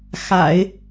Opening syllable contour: low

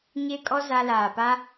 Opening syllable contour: high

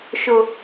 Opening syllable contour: high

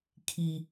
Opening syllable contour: low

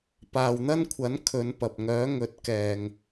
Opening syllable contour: low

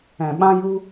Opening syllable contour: low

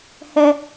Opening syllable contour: high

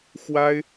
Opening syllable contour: high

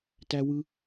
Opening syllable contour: high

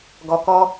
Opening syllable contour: low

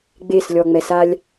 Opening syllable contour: falling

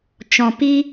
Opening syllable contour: low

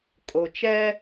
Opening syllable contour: low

